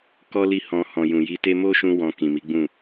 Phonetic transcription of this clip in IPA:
k ɔ˦ l i˦˨ h ɔ̃˧ h ɔ̃˨ j ũ˨ j i˨˦ t e˧ m o˦ ʃ ũ˧ w ɔ̃˧ k ĩ˨ m i˨˦ ɡ͡b ũ˦˨

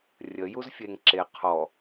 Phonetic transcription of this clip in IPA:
rʲ ə j u z fʲ e ŋ ǁ e qʰ ɔ

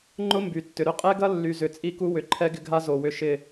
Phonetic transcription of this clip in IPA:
ŋ͡ǃ ʊ˦ m b y˨ tː ʏ˨ ɾ ʏ˧ qʼ ɛ˦ ɡ ɐ˦ lː y˨ z ʏ˨ t͡sʼ i˦˨ k u˦ w ʏ˨ ǃʰ ɛ˦ ɡ ɪ˧ ɡʱ a˦ z o˨ w ʏ˧ ʃ ɪ˦˨

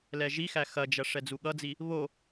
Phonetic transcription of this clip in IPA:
l ɛ ʒ i x æ x ɐ d͡ʒ ɐ ʂ ɛ d͡z u ɠ ʌ d͡z i | β o

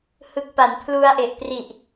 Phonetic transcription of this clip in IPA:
h ɯ˦˥ k̚ p a˩˦ n pʰ l u˧ a̯ ʔ e˨˩ ʔ p r i˨˩ ʔ

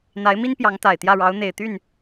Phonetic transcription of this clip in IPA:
n̪ a˧˥ ɪ̯ m i˥ n p j ɑ˧˥ ŋ t̪ a˨˩ ɪ̯ t̪ j ä˥˩ ɻ ɑ˧˥ ʊ̯ n̪ e˨˩ ɪ̯ t̪ y˥˩ n

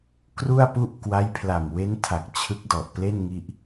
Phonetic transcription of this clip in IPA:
k r u˥˩ a̯ p u˥˩ ʔ k w a˦˥ j pʰ l a˨˩ m w e˦˥ n tʰ a˨˩ k̚ t͡ɕʰ ɯ˦˥ k̚ d ɔ˨˩ ʔ p l e˥˩ n ŋ i˥˩ ʔ

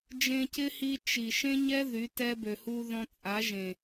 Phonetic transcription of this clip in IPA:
d͡ʒ ẽ˧ c ɪ˦ h i˧ t͡ʃ i˨ ʃ ẽ˦ ɲ ɛ˦ ð y˨˦ t ɛ˦ b ø˨ h u˧ ð ɔ̃˧ t͡sʼ a˨˦ ʒ ẽ˨

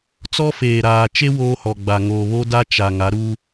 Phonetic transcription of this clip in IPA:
t͡s ɔ˦ f eː˨ ɾ aː˨ t͡ʃ e˦ w oː˦ h ɔ˨ ɡ͡b a˨ ŋ oː˨ β o˦ d a˦ t͡ʃ a˨ ŋ a˨˦ ɾ u˦

